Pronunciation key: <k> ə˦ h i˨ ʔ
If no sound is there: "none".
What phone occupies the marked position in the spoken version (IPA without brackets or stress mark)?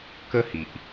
k